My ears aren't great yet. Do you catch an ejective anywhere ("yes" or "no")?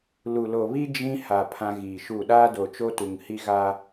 no